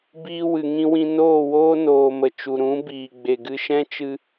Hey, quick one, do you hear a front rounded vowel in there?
no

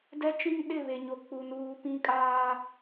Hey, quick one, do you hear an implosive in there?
yes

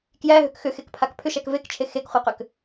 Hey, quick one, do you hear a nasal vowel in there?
no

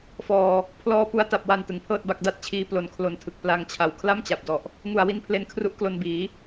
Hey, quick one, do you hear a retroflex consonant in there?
no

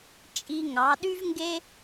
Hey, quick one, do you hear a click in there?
no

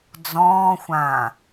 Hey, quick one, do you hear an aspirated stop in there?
no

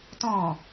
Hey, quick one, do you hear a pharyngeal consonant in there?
no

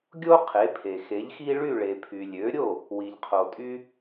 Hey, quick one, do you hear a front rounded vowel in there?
yes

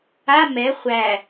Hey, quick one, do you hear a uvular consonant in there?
yes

